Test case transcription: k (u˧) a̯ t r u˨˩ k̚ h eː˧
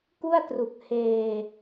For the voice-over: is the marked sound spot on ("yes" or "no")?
no